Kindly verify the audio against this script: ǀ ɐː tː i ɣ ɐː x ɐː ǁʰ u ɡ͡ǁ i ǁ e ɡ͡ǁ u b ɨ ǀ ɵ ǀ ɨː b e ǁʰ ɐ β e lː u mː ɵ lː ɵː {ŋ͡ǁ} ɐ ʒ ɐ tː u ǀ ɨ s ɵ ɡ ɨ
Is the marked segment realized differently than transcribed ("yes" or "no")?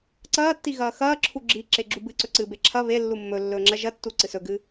no